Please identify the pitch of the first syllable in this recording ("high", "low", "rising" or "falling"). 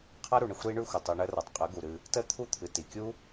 high